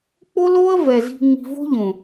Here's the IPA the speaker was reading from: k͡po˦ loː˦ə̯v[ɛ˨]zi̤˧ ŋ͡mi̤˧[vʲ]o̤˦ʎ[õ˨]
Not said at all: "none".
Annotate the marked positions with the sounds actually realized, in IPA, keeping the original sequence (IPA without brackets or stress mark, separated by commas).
ɛ˨, v, õ˨